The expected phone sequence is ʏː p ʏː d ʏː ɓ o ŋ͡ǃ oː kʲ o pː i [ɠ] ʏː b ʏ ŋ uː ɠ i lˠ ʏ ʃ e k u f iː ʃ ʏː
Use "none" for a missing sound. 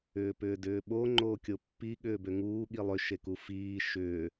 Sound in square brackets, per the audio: ɠ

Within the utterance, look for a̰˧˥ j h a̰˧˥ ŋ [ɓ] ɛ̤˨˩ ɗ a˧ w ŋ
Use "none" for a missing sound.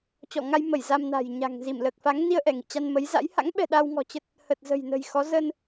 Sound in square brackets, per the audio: ɓ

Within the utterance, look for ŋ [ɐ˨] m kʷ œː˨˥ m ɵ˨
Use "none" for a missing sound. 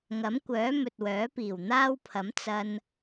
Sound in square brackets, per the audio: ɐ˨˥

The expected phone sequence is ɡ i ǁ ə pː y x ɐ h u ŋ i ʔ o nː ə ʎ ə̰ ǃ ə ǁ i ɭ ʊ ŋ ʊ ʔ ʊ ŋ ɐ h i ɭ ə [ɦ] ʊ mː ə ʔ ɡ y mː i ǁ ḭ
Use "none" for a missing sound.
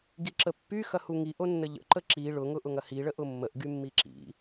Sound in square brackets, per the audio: ʔ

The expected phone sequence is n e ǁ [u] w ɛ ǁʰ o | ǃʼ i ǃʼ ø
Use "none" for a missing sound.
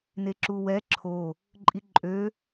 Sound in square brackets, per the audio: u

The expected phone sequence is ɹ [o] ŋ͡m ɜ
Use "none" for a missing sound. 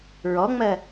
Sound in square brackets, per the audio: ɔ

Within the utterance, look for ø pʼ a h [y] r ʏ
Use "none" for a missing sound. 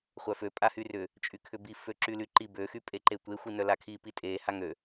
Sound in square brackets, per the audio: y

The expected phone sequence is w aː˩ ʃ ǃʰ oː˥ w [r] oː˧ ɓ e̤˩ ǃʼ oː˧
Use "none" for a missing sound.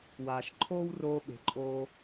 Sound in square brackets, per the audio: r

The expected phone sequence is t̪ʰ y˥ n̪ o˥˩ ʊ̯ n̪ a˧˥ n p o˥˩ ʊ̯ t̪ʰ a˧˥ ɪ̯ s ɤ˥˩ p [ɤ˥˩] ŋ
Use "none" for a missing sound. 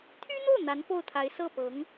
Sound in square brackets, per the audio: ɤ˧˥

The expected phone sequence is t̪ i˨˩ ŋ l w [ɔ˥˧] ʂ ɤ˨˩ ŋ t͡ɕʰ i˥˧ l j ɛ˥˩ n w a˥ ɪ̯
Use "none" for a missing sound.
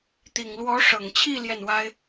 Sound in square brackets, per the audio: ɔ˧˥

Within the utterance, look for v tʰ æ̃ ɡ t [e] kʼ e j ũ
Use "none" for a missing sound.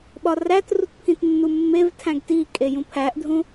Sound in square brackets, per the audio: i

